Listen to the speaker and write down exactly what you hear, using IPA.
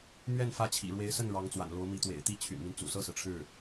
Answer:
m ɥ ɛ˥˧ n f ä˥˩ t͡ɕʰ ḭ˨˩ ɻ w e˧˥ ɪ̯ s ə˥˩ n ɻ ɑ˧˥ ŋ t͡s w a̰˨˩ n l o˧˥ ʊ̯ m i˧˥ t̪ w ḛ˨˩ ɪ̯ t̪ i˥ t͡ɕʰ y̰˨˩ n m i˦ n t͡s ṵ˨˩ s ɤ˥˩ s ɹ̩˩ ʈ͡ʂʰ ɻ̩˥˩

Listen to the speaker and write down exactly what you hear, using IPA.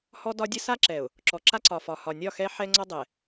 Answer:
h ɔ˦ d ɒ˦ dʲ ə˦ s a˦ ǁ ɛ˨ ʊ̯ | ǁ ɔ˨ ǁ a˦ ǀ ɒ˨ f ɒ˨ h ɒ˨ nʲ ɒ˦˨ x ɛ˦ ħ ɛ˦ ŋ͡ǀ ɔ˦ dˤ ɛ˨

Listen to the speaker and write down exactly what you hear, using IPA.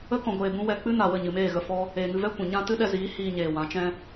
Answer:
ə˦ k ɔ̃˧ ɡʷ eː˧ b ũ˦ w ɛ˧ k͡p ɨ˦ n a˨ w ə˦˨ ɲ ɨ˨ m eː˦˨ ɣ ə˧ f ɔ˦ | eː˨ ŋ ɨ˧ v ɛ˦ kʷ ɛ̃˨ ɲ ã˦ t ɨ˦ ɗ ɛ˧ z iː˨˦ h iː˧ ɲ eː˨ w ã˨˦ t͡ʃ ɛ̃˦

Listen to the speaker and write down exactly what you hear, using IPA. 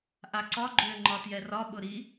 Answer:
ʔ a ǀ ɒ ɡ͡ǃ ø ŋ͡ǃ ɒ t j ɛ r ɒ ɓ ʊ ɾ i

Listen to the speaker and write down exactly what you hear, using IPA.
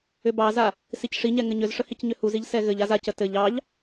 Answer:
ʏ b ɑ z a | s i c ʂ i ɲ ɛ ŋ ɘ ɲ ʏ z ʂ ə h i c ɲ ʏ h u z i ʎ s ɛ ɣ ɘ ʎ a z a c ə t ɘ ʎ ɑ ʎ

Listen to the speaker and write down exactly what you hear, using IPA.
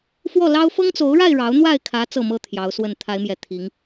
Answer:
f w ɔ˥˨ l ɑ˦ ʊ̯ f ɤ˦ ŋ t͡s o˨˦ ʊ̯ ɻ a˥˨ ɪ̯ ɻ ɑ˨˦ ʊ̯ n̪ w a˥˨ ɪ̯ kʰ ä˨˦ t͡s ɤ˥˨ m ɤ˦ t̪ʰ j ɑ˨˦ ʊ̯ s w ə˥˨ n t̪ʰ a˨˦ ɪ̯ m j ɛ˨˩ t̪ʰ i˨˦ ŋ

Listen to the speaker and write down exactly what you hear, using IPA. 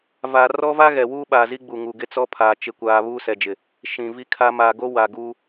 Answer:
v a˨ r ɔ˦ v a˦ ɣ ɛ˨ w uː˦ ɓ aː˨ z i˦ ɡ͡b u˨ ŋ u˨ ɡ ɪ˦ t͡s ɔ˦ pʰ aː˨ t͡ʃ ɪ˦ kʷ aː˦ β uː˦ s ɛ˨ d͡ʒ ɪ˨ | ʃ ĩ˨ v i˦ kʰ a˦ m aː˨ ɡ o˦ w a˨ ɡ uː˦

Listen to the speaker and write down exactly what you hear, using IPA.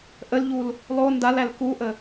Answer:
ʔ ə l ʎ u l | lˠ o n d a l æ l k u ʔ ə

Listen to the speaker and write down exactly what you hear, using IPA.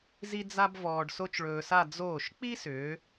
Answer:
z i˥ d͡z a˥ b v ɔː˧ ɖ s o˥ t͡ʃ ɭ ɵː˧ s a˥˧ d͡z oː˧˩ ʃ k͡p i˥ s ʏː˩˧

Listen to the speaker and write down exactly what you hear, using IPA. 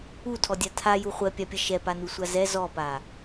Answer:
u tʰ ɔ dʲ a tʰ a j u χʷ ɛ pʲ a pʲ ɐ ʃ ɛ p a n u sʷ a z ɛ z ɔ p a

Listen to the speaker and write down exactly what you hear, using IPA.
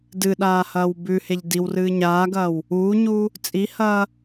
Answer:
d ɨ ɗ aː h ɐː w b ʉ h e ʎ d i w r ɨː ɲ aː ɡ ɐː w | uː ɲ uː | t͡sʼ i h ɐː

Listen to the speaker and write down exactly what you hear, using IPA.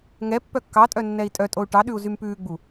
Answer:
ŋ ɛ pː œ kː ɑ tʼ œ nː ɛ i̯ tʼ œ tʼ o u̯ ʈ ɑ ɗ ʉ u̯ z y m p ʉː ɡ͡b u

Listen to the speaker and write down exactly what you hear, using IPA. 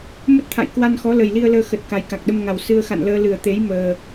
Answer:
m ə˦˥ t̚ t̪ʰ a̰˧˨ j k w a˧ n x ɔ˨˦ l ə˨˩ j l i˧ ə̯ l əː˧ x ə˨˩ t̚ k a˨˩ j k a˨˩ k̚ ɗ ə˧ m ŋ a˨˩ w s ɨ˧ ə̯ x a̰˧˨ n l əː˧ l ɨ˨˩ ə̯ t̪ e˨˦ j m əː˨˩

